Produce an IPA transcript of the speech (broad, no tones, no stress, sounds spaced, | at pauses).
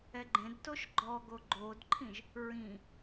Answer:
ɛ ɡ͡ǃ ẽ d t o ʃ ɡ͡ǃ ɔ ɡ o ɡ͡ǃ o d ǃʰ ĩ ʒ | ɹ ĩ